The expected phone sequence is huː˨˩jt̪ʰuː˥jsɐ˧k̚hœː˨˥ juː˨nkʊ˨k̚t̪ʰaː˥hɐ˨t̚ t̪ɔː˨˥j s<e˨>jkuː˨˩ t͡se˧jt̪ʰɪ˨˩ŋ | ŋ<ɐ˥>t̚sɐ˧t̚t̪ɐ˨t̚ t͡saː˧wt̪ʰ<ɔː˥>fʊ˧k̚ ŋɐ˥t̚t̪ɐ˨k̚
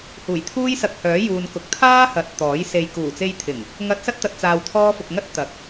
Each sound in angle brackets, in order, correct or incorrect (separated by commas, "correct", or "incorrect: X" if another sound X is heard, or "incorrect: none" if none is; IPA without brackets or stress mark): correct, incorrect: ɐ˨˥, correct